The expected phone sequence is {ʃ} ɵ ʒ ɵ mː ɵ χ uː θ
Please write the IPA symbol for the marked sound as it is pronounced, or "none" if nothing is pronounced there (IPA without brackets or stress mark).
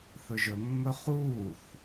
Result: θ